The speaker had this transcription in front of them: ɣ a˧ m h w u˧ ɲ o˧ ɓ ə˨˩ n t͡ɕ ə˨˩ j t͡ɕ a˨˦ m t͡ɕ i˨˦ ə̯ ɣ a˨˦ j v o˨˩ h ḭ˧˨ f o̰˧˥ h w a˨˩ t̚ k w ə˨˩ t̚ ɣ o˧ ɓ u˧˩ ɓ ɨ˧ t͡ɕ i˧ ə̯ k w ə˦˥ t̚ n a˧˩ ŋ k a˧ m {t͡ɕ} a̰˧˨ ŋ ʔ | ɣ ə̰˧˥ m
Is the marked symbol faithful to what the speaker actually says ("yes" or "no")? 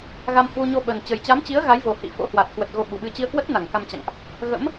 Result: yes